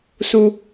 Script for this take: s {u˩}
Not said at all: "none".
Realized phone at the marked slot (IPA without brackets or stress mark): u˩